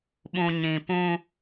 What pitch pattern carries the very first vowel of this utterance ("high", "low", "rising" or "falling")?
low